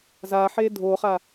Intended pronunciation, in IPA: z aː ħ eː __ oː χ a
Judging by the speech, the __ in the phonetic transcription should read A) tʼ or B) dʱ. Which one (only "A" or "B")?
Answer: B